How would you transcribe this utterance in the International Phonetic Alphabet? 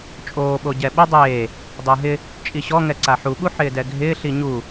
t͡ʃʼ oː ɓ o ɟ ɛ ɓ ɪ dˤ eː | dˤ ɪː ɦ ɪ | t͡ʃʼ i ɕ ɔ ŋ ɛ ǀ a ħ u ɓ u ħ ɪː d ɛ ɡʱ ɪː ɬ i ɲ u

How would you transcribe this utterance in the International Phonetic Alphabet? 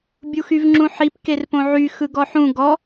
bʲ u x y v ŋ͡ǁ ũ ħ i p k e r p õ ʕ y x ɯ ɡ ɔ ħ ũ ɡ ɔ

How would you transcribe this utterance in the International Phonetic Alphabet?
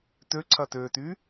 t ø ǀʰ ɐ t ø t y

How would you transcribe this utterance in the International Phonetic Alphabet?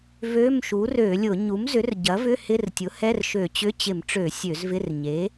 v ø˧˥˧ m ʃ u˩˥ r ø˧˩˧ lʲ ʊ˧˩˧ ɲ u˩˥ m z ʏ˩˥ r ɟ ɐ˩˥ v ʏ˧˥˧ h ɪ˧˥˧ r tʲ ʊ˩˥ h ɛ˧˥˧ r ʃ ø˧˩˧ t͡ɕ ʏ˧˥˧ t͡ɕ ɪ˧˩˧ m ʈ͡ʂ ø˧˩˧ sʲ ø˧˩˧ z v ɪ˧˥˧ r ɲ e˩˥

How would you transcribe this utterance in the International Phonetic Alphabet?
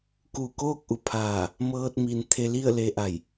k u˧˩ k oː˥˨ k̚ ʔ u˩˧ pʰ aː˧˩ | m ɤː˧ t̚ m i˧ n t̪ʰ e˧ l i˥˨ ə̯ l e˧ ʔ a˧˩ j

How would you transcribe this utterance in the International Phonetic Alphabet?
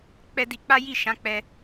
k͡p ɛ˧ d i˧ k͡p a˦ j i˦˨ ʃ ã˨˦ k͡p ɛ˧

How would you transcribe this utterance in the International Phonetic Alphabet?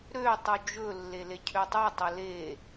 ɾ ø tˤ u d͡ʒ ɵ lː e l e cʰ ø tˤ u tˤ ɵ l e

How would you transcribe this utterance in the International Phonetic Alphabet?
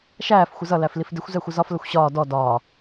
ʃ æː f xʷ ə z ʌ l æ f l i f d ɪ xʷ z ɛ xʷ ə z ɒ f l ə xʷ ɕ ɒː d ɔ d ɒː

